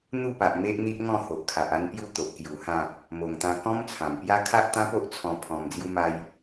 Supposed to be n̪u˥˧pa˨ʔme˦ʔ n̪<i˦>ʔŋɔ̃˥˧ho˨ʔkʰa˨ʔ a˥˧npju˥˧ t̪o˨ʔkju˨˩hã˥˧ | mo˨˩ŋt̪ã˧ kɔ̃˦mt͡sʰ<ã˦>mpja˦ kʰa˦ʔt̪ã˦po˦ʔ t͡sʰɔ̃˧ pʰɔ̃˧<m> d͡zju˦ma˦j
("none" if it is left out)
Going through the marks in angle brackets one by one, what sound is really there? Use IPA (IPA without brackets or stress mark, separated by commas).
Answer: i˦, ã˨˩, m